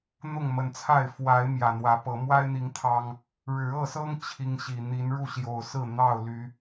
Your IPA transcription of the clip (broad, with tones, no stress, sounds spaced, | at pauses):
n̪ ʊ˥˨ ŋ m ə˨˩ n t͡sʰ a˥˨ ɪ̯ f w a˨˦ ɪ̯ m j ä˨˩ n̪ w ä˨˦ p ɤ˨˦ m w a˦ ɪ̯ n̪ i˨˦ ŋ t̪ʰ ɑ˦ ŋ | ɻ ɻ̩˨˦ ɤ˥˨ s ɤ˦ ŋ t͡ɕʰ i˦ ŋ ɕ i˨˩ n̪ i˨˦ n ɻ u˥˨ ɕ j o˨˩ ʊ̯ s ɹ̩˥˨ n̪ ɑ˥˨ ʊ̯ l y˨˦